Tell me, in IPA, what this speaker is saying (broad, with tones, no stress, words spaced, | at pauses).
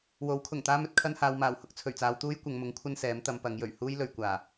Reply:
wo˨˥wkʰʊ˨˩ŋt̪aː˥m ɵ˧t̚kʰɐ˧nhaː˨wmaː˨˩w hʊ˨˥k̚ t͡sʰɵ˨˩ɥt͡saː˨˧wt̪uː˥j kʷɐ˨˧ŋmʊ˨˥ŋ kʷʰɐ˥nsɛː˨˥m t̪ɐ˨˧mpɐ˨˧ŋjɵ˨˩ɥ huː˥jlɵ˨ɥkʷaː˨˩